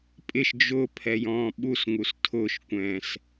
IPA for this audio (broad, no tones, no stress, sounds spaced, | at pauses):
pʼ ɪ ʃ d͡ʒ ʊ pʰ ɛ j ɔ̃ː ɓ u s ŋ u s tʰ ʊ ʃ kʷ ɛ̃ː s